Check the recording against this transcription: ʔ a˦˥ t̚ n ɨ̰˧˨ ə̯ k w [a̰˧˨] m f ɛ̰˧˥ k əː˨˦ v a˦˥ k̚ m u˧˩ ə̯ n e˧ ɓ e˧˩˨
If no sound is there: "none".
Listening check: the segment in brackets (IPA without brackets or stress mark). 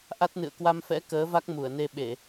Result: a˧